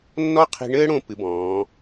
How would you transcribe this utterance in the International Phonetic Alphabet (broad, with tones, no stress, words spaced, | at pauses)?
nːɔ˥qʰi̤˧ɳɘː˥ɽõ˧ pɨ˩˧bɔ̃ː˩˧